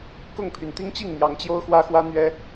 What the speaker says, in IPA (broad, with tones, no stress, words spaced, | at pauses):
kʊ˥˨ŋpʰy˩n t̪i˦ŋt͡ɕi˥˨ŋ n̪jɑ˨˦ŋt͡ɕjo˦ʊ̯xwä˦xwä˦ n̪ɥɛ˦